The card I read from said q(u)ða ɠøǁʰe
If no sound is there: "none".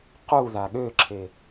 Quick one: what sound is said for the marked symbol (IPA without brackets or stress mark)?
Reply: u